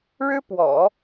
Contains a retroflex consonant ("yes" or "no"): yes